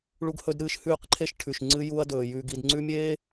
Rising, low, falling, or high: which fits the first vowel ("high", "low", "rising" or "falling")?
high